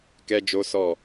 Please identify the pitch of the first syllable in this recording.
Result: high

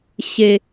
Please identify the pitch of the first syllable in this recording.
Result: high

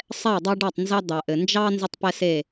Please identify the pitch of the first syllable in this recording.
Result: falling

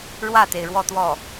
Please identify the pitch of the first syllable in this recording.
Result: falling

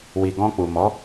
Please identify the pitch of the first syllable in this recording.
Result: low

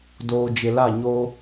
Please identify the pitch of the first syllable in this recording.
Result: low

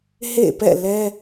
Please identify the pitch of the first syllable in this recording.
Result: falling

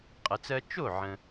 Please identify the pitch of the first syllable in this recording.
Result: low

